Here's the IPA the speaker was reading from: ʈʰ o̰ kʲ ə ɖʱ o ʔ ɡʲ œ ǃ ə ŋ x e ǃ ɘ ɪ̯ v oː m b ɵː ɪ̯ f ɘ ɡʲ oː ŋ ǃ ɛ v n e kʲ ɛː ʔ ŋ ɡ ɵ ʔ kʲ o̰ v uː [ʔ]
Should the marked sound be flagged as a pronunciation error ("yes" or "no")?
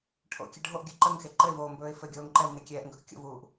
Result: no